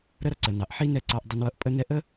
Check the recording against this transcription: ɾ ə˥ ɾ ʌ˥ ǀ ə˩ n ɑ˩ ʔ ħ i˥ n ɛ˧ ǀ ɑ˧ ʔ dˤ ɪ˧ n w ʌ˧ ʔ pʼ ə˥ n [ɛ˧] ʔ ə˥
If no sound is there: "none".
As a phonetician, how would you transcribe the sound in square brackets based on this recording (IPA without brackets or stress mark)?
ɛ˥